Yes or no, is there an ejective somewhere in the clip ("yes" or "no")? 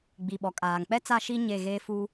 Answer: yes